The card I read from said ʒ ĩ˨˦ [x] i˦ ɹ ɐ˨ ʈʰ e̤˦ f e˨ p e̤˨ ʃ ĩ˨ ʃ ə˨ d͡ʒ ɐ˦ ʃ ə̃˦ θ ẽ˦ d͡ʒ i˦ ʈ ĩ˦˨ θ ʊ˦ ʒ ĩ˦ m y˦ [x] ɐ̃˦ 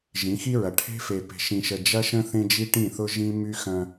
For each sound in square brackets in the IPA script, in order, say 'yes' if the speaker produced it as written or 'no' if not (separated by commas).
yes, yes